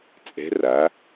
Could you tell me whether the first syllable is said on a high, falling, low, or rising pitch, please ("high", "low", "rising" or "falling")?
rising